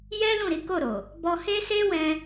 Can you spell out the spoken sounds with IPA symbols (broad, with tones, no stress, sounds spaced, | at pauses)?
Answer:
j ɛ˦ l ũ˦˨ ɾ i˨˦ k o˦˨ ɾ o˨ | b ɔ˦ h e˦ s e˦ w ɛ̃˧